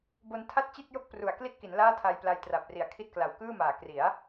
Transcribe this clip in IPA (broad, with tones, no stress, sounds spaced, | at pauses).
b o˧ n tʰ a˥˩ t̚ t͡ɕ i˥˩ t̚ j o˥˩ k̚ p r u˨˩ a̯ k l i˥˩ t̚ k i˩˦ n l aː˥˩ tʰ a˧ j p l a˧ j t r a˨˩ p̚ r i˨˩ a̯ kʰ i˥˩ t̚ k l a˨˩ w k ɯː˥˩ m aː˨˩ k r i˩˦ a̯